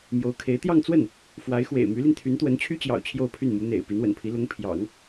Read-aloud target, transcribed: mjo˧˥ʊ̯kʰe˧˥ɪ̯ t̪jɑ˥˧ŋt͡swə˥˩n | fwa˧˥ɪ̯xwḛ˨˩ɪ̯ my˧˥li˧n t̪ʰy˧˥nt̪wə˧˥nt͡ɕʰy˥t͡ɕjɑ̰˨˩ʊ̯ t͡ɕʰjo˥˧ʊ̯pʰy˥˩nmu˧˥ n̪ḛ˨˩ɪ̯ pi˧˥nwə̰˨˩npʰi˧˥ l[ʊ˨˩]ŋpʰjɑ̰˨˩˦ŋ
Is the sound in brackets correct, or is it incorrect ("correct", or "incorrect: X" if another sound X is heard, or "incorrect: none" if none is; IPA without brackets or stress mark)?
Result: incorrect: ʊ˧˥